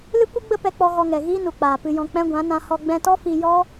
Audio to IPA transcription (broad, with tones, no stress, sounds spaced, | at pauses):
l ɨ˦ kʷ ɨ˦ ɡ͡b ə˦ p ɛ˧ k͡p ɔ˧ ɣ ɔ˧ ŋ ɛ˨ ɣ iː˦ n u˨ k͡p aː˨ p ɨ˧ j ɔ̃˧ k͡p ɛ̃˦ ɡʷ ã˨˦ n ã˧ h ɔ˧ ɡ͡b ɛ̃˧ t ɔ˦ f i˧ j ɔ˦